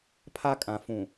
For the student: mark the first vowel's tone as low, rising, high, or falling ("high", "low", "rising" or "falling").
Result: high